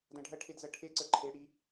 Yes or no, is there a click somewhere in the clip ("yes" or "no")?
yes